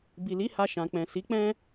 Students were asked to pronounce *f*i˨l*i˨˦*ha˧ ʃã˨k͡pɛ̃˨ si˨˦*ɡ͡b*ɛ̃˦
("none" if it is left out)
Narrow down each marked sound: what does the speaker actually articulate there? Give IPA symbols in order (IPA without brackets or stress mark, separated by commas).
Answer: b, i˨˦, k͡p